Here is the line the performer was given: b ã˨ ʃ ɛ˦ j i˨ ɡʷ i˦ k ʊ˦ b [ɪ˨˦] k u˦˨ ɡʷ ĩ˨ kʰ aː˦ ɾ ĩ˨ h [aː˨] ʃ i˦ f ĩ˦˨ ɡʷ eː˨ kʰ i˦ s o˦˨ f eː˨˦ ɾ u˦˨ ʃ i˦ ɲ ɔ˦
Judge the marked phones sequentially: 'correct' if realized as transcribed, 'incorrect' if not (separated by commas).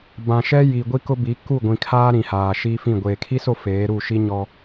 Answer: incorrect, correct